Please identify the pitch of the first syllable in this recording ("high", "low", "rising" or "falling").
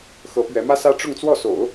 rising